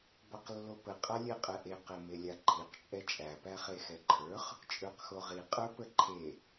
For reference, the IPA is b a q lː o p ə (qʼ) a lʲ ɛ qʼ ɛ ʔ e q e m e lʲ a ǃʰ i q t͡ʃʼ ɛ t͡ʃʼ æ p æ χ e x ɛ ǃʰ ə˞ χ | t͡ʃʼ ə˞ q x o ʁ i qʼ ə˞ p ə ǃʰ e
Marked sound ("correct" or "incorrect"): correct